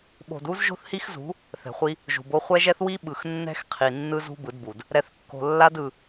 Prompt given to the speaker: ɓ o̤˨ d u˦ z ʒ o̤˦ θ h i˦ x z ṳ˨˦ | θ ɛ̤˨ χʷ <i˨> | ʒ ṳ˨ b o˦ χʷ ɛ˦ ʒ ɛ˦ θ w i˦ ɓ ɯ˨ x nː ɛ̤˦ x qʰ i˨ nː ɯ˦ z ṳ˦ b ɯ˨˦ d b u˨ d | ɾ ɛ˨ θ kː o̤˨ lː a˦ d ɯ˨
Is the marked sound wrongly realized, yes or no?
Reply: yes